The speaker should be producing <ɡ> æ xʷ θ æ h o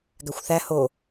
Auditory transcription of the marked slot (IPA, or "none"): ɡ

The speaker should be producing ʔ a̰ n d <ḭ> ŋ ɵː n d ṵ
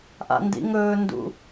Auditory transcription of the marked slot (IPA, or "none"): ḭ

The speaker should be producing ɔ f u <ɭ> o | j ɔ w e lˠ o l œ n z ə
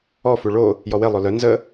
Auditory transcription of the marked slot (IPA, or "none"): ɭ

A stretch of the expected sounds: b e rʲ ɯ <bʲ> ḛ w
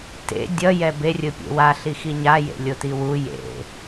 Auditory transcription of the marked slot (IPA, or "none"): pʲ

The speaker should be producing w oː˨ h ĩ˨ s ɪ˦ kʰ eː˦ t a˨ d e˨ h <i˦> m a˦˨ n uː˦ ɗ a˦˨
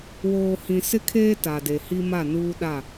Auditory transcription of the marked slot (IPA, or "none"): i˦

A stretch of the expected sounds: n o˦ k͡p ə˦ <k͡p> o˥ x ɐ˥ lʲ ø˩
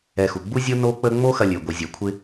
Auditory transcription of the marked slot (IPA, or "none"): ŋ͡m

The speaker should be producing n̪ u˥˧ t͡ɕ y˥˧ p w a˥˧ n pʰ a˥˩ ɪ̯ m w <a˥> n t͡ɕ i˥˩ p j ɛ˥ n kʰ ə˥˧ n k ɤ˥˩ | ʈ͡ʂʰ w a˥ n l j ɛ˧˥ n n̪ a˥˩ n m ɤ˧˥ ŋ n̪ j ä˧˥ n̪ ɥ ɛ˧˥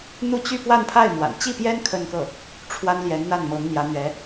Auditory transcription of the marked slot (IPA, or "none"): a̰˨˩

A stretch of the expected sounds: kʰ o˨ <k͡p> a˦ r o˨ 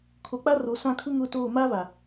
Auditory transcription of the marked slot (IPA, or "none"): k͡p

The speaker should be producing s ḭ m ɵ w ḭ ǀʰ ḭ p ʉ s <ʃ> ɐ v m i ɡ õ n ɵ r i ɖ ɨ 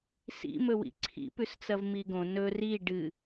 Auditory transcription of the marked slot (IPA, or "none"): t͡s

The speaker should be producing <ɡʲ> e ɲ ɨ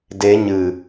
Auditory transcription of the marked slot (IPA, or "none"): d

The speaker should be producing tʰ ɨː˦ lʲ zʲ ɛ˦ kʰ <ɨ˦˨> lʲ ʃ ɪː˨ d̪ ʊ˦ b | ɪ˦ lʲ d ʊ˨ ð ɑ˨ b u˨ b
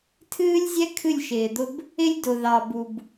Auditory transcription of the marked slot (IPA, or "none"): ɨ˦˨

